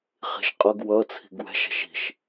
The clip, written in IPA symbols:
χi̤ʃqʼʌɡ wʌ t͡sʰi̤ɡwɛ̤ʃ ɛ̤ʃi̤ʃ

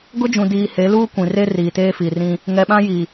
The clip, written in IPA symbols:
ɡʊ˦d͡ʒũ˨diː˨ he˨˦luː˦kʷĩ˨re˦ riː˨teː˦fi˨ rĩ˦ | ŋɛ˨ɓã˦ji˨

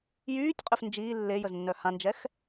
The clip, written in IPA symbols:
jyːtʲqʼøf nd͡ʒiː lːe jəznːœhãnd͡ʒɛx

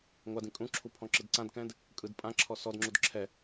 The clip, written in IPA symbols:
ŋʷadĩ kʼũǁʰu pʰɔ̃ǁɯdǀãdkɛ̃d | kʼɯd pʼãǁʰɔ sɔdŋ͡ǁud ǁʰɛ

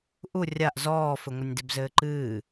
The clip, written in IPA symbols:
ʔu rʲaʔ zɔːfɘŋʷɐnʲ debzɘːǃɨː

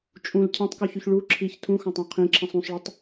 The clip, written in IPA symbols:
t͡ʃʼũl cʰɛ̃tˤkuçyç ɭu ǁʰiç tʰũxɑ̃tˤɑ̃ qʰĩǁʰĩsˤ ũsˤɭɵtˤ

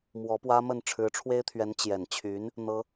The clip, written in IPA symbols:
mwɔ˧˥pwä˥mə˥˩n ʈ͡ʂʰɻ̩˧˥ʈ͡ʂʰwe˥ɪ̯t̪ʰɥɛ˧˥n t͡ɕjɛ˨˩nt͡ɕʰy˧˥n | n̪ɤ˥

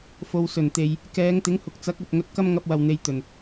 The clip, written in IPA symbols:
fo˨wsɵ˨˩nt̪e˨j | kɛː˨˧ŋt̪ɪ˨˥ŋhʊ˨k̚t͡sɐ˨˥k̚ ɵ˨t̚ ŋɵ˨t̚kɐ˧mŋɐ˨p̚wɐ˨˩w n̪e˧jt̪ɵ˨˩n

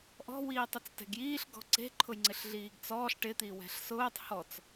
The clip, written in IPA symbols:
ʔɔ̤ wiːtˤʊt͡stɛ̤ɡjiːɬ ɡɔ̤ǀe̤ ǃʰʊjŋ͡ǀɪɬɮiːɡt͡sɔːɬ ʈɪ t̪iwɛ̤ɬsʊːtˤ hɔt͡s

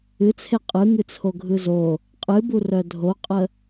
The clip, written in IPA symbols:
ɨt͡sʰe qʼɯŋɨt͡sʰo ɡʱɯzo | qʼɨburœ dʱoqʼə

